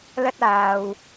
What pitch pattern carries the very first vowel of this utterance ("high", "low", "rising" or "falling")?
high